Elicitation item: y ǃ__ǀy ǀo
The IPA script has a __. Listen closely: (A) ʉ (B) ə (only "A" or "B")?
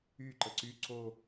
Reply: B